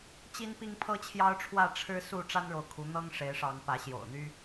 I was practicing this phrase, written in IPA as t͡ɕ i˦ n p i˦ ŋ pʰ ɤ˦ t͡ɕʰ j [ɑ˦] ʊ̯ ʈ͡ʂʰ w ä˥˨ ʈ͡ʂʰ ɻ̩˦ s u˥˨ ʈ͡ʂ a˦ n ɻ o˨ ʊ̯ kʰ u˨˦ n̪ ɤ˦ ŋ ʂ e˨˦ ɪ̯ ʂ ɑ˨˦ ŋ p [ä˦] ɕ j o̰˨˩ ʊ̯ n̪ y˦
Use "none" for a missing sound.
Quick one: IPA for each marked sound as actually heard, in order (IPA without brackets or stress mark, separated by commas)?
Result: ɑ˦, ä˨˦